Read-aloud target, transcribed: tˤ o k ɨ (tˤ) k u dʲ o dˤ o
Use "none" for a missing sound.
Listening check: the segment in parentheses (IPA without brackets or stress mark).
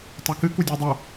none